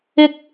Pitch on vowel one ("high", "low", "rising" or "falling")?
high